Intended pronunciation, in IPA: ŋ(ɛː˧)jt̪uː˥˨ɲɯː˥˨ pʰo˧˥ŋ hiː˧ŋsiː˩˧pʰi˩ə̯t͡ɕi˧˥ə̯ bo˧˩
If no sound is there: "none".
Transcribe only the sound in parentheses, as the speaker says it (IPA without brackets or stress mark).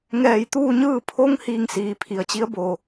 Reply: ɛː˧˩